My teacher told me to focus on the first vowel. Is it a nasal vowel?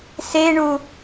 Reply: no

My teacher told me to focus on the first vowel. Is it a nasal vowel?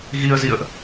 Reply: no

